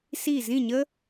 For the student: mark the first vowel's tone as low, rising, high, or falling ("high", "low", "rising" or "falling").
falling